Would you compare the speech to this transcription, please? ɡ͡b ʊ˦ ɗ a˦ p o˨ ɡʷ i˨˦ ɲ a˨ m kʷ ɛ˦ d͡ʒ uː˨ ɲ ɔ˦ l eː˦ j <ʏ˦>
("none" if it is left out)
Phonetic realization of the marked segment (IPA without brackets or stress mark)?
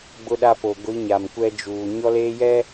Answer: ɛ˦